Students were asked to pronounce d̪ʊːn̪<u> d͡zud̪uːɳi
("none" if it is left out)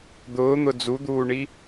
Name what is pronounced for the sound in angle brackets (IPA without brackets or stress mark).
ʊ